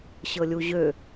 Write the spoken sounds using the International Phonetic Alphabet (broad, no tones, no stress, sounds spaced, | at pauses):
ɕ ɤ lʲ u ʑ ø